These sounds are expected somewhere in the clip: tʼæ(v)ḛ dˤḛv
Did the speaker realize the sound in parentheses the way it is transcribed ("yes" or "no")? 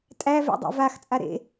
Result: yes